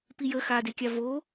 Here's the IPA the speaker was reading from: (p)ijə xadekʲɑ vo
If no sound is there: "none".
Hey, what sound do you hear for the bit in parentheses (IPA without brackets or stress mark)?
p